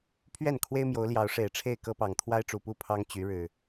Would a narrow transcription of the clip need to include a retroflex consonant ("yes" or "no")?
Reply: yes